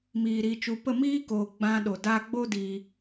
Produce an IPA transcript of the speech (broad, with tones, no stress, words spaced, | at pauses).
miː˨ ɾiː˨t͡ʃu˨pə˦˨ miː˦koː˨ ɡ͡bã˧ɗo˨ da˧ ɡ͡bo˦diː˧